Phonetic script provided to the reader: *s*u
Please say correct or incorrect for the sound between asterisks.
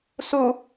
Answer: correct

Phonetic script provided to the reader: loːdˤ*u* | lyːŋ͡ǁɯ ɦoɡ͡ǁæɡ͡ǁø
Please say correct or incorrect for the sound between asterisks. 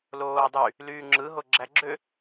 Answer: incorrect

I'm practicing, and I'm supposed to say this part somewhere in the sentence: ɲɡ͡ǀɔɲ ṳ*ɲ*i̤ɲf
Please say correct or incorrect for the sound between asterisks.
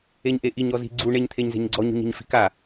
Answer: correct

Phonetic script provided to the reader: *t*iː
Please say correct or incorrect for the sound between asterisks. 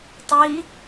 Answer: incorrect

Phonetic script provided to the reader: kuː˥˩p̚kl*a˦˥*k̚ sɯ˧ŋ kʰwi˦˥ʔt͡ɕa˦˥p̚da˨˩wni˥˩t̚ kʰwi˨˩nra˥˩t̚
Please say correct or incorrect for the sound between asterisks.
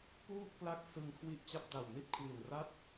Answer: correct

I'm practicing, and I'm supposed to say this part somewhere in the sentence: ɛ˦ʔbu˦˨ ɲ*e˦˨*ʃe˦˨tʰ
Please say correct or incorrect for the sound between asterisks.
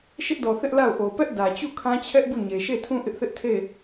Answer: incorrect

